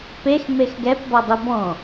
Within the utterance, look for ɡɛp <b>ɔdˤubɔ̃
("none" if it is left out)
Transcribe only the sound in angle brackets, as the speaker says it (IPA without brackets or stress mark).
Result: b